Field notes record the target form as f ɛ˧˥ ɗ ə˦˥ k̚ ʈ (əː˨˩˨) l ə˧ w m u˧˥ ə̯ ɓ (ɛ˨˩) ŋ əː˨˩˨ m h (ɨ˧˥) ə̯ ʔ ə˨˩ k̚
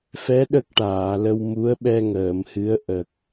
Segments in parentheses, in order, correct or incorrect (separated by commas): incorrect, incorrect, correct